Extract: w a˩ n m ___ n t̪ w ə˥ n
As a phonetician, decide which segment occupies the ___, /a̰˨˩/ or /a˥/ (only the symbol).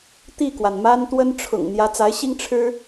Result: a˥